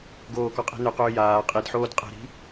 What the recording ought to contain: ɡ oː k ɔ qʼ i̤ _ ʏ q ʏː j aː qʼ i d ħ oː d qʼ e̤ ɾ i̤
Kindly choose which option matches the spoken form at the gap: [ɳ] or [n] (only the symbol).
n